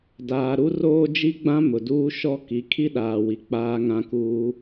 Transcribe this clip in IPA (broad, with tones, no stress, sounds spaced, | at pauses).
d aː˨ ɾ u˦ r oː˦ d͡ʒ i˦ ɡ͡b ã˦ m ʊ˨ d uː˦ ʃ ɔ˦ k i˨˦ kʰ i˦ ɗ aː˨ w i˨ k͡p aː˦ ŋ ã˦ k uː˦